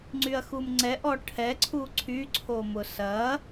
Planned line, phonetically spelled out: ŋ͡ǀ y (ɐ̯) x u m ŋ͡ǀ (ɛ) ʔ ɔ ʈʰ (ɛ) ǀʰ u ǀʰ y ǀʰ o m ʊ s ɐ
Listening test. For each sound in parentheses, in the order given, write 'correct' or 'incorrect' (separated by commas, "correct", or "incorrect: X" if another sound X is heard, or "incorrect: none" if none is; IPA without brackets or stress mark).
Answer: correct, correct, correct